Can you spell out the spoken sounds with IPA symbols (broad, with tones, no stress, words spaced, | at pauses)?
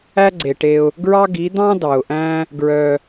æ˦ɡ͡ǀe˨ʈe˧ʊ̯ | ɡɹɑ˦ɡi˨˦ d̪ɑ̃˦ dɑ˨ʊ̯ʔæ̃˦ | ɡɹœ˧